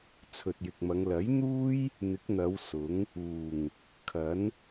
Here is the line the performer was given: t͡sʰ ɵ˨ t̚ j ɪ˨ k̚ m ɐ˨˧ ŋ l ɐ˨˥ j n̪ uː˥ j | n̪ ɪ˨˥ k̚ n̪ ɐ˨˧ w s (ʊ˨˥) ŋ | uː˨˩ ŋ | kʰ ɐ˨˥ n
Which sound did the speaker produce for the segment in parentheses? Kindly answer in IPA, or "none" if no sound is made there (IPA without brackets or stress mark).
ʊ˨˥